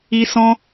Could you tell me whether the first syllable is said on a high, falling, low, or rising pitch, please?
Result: high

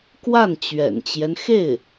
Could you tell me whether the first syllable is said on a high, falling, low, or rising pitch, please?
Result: falling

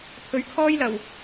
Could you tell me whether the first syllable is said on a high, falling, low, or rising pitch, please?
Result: rising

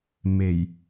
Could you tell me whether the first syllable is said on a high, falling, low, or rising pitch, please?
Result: low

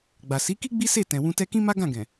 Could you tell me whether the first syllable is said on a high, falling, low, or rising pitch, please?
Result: low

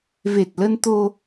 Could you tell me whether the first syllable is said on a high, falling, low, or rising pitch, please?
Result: low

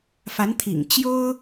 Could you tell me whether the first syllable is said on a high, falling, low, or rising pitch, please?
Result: rising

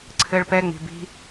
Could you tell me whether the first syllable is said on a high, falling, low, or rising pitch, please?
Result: high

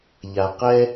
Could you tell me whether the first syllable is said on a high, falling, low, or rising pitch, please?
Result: low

